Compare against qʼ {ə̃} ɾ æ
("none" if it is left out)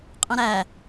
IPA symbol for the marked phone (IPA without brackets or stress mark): ə̃